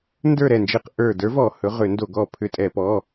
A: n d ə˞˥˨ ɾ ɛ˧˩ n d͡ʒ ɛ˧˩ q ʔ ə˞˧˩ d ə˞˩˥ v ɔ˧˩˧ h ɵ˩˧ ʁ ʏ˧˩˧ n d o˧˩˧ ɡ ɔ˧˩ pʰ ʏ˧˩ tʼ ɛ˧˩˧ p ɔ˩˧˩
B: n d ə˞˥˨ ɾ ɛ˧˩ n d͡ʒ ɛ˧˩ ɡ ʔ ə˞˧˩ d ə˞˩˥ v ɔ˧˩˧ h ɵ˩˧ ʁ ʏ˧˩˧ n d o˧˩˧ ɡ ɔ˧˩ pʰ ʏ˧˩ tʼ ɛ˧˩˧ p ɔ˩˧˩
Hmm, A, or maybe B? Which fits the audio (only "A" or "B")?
A